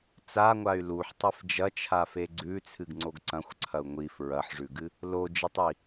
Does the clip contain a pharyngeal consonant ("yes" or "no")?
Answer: yes